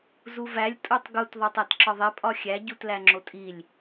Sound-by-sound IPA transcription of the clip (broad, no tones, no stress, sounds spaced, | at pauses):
z u v æ lʲ tʼ u tˤ ɡ u t ðˤ o tˤ æ t ǁ ɒ ðˤ e pʼ ɒ xʲ æ ɟ u t l æ ŋ͡ǁ o tʼ i lʲ